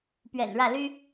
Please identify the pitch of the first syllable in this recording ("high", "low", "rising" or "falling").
low